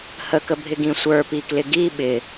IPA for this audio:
h ə k ə bʱ ɪ ɡ ĩ sʷ ə˞ p i k l ɪ ɡ i ɓ ɪ

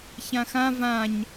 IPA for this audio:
ç ã x ã v ã ɲ

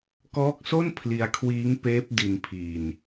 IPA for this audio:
k ɔː˦˥ k̚ s o˥˩ n pʰ l i˧ a̯ kʰ w iː˦˥ ŋ p eː˦˥ p̚ d i˧ n pʰ iː˧ n

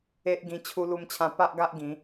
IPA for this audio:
e˦ ʔ ɡ ĩ˧ t͡ɕʰ u˧ l u˧ m t͡ɕʰ ã˧ p a˦ ʔ ɡ a˦ ʔ ɡ ĩ˨˦

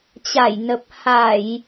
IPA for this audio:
t͡ɕ a˧˩ j n ə˨˩ p̚ h a˧˩˨ j

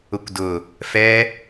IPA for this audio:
ʊ kʷ d ʊ | f ɛ

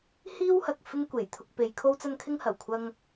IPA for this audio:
h iː˥ w h ɐ˨ k̚ f ɪ˥ ŋ kʷ e˨˩ j t̪ʰ ʊ˧ k̚ p e˨˧ j kʰ o˥ w t͡s ɐ˥ n kʰ ɪ˥ ŋ h ɐ˨˩ w kʷʰ ɐ˧ ŋ

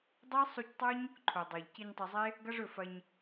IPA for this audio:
dˤ e˦ sˤ u˧ c tˤ o˦ ɲ | ǃʰ o˨ dˤ o˨ ʎ c i˧ ɲ tˤ ɐ˧ zˤ e˦ | ɡ ɐ˦ ʐ ɵ˦˨ f ɐ˧ ɲ

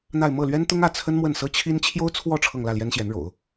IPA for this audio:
n̪ a˥˧ ɪ̯ m ɤ˥˩ l ɥ ɛ˥ n t̪ ʊ˥ ŋ ä˥˩ t͡sʰ ə˥ n m w ə˥˩ n s ɤ˥ t͡ɕʰ i˥ n t͡ɕʰ j o˥ ʊ̯ t͡sʰ w ɔ˥˧ ʈ͡ʂʰ ɤ˥˧ ŋ l ä˥˩ l j ɛ˥ n ɕ j ɛ˧˥ n ɻ o̰˨˩˦ ʊ̯

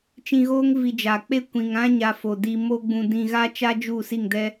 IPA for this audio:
t͡ʃ ĩ˧ ɣ oː˦ ŋ v i˧ d͡ʒ aː˨ k͡p e˦ kʷ ĩ˨ ŋ ã˦ ɲ aː˧ f o˨ d iː˧ m o˦ ɡ͡b ũ˧ d ĩ˧ ɣ a˦ t͡ʃ a˦ d͡ʒ u˦˨ s i˦˨ ŋ d ɛ˦

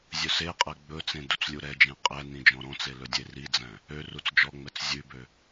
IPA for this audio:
zʲ ɵ s e qʼ ɛ ɡ͡b ɵ t͡s ẽ d u t͡s lʲ u ɾ ɛ d͡ʒ ẽ qʼ ɛ n ĩ d͡ʒ ɔ̃ ɾ ɔ̃ t͡s e l ɵ dʲ e r i d͡z æ̃ | ø r u t͡s d͡ʒ ɔ ŋ͡m ɛ t͡s zʲ ʉ b ø

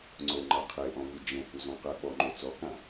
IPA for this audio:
ŋ͡ǀ o ŋ͡ǃ a qʰ e ʔ ɔ̃ v u d͡ʒ ɛ̃ h u z ɔ̃ q ɛ ɓ ɔ ŋ͡ǃ o t͡s ɔ k ã

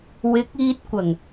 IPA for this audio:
w ɪ˨˥ k̚ iː˧ t̚ kʷ ɐ˨˩ ŋ

